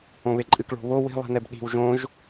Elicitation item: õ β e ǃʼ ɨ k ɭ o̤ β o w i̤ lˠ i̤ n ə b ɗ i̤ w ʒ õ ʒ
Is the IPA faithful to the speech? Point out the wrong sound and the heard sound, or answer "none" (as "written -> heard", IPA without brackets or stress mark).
ə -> ɛ